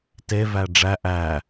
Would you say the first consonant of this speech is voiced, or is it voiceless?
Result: voiceless